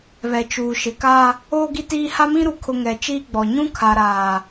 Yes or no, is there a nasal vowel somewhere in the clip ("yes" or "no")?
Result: yes